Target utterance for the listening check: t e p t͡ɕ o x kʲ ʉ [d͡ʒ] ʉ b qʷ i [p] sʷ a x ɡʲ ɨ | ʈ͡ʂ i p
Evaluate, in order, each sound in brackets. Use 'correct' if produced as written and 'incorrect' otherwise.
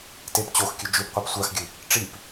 correct, correct

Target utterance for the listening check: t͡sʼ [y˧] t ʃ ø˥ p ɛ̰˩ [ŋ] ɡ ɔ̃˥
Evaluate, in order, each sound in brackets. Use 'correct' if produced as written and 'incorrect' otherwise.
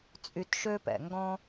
correct, correct

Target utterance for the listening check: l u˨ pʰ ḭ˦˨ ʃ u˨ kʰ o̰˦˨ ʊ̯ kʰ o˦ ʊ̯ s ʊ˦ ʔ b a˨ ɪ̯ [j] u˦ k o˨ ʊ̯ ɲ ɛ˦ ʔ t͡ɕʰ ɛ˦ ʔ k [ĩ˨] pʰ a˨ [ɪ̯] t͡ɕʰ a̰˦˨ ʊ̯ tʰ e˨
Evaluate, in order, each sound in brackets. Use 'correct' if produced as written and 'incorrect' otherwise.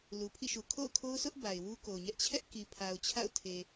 incorrect: w, incorrect: i˨, incorrect: ʊ̯

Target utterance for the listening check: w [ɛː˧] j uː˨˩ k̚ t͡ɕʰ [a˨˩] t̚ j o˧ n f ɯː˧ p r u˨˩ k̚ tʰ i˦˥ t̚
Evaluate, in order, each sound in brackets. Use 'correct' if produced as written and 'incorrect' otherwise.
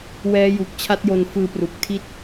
incorrect: ɛː˦˥, incorrect: a˦˥

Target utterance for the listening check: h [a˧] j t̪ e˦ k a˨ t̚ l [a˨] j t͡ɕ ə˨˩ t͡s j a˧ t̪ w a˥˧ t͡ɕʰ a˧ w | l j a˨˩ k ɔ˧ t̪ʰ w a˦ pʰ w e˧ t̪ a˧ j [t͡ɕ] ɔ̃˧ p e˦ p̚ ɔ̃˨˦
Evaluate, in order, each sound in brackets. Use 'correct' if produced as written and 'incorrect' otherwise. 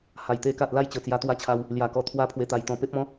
incorrect: a˨˩, incorrect: a˥˧, incorrect: t̪

